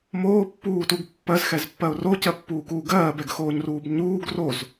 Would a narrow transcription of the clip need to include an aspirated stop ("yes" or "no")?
no